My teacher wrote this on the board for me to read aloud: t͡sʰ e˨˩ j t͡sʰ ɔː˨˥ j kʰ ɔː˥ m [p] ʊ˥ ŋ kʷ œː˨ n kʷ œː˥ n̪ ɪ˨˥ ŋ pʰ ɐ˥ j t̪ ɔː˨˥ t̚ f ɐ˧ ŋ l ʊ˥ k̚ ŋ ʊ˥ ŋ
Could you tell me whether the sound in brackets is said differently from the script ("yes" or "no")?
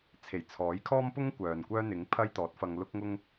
no